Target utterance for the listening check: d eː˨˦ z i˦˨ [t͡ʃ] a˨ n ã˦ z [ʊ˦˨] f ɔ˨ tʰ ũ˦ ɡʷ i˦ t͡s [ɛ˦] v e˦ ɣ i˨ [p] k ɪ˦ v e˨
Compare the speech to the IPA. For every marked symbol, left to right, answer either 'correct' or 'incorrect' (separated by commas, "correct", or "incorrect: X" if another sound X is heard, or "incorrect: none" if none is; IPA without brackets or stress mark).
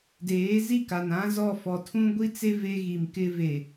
incorrect: k, incorrect: ɔ˦˨, incorrect: e˦, incorrect: m